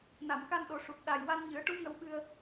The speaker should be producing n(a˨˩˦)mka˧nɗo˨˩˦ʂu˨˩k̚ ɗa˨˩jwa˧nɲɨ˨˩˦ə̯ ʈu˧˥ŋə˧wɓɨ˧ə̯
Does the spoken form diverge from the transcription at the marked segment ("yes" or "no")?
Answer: yes